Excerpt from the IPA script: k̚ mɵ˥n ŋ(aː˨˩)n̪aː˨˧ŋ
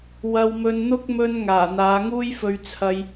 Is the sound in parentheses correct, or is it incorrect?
correct